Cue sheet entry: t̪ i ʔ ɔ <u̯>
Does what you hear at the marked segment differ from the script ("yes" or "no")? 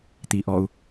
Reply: no